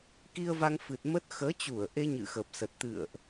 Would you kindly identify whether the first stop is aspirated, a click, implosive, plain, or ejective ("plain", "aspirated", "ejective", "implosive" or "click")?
plain